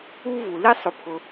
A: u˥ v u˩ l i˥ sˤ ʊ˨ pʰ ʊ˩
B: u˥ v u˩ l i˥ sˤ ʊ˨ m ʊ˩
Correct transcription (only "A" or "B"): A